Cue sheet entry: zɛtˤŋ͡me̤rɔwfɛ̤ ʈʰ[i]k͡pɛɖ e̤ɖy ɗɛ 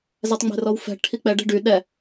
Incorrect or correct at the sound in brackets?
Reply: correct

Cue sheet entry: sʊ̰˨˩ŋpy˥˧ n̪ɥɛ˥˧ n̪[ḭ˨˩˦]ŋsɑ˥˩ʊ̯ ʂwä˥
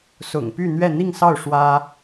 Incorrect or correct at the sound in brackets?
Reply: incorrect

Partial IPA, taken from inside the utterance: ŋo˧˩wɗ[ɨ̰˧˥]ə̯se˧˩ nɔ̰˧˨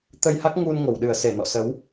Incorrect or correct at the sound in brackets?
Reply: incorrect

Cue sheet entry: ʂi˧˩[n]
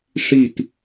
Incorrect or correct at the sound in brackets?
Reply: incorrect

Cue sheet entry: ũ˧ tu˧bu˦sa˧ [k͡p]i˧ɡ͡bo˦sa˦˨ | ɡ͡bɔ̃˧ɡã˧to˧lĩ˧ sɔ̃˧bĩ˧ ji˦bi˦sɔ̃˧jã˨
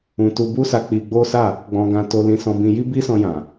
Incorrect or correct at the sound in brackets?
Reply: correct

